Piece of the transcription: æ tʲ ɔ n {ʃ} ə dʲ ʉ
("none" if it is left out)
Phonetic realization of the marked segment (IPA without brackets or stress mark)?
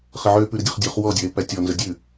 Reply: z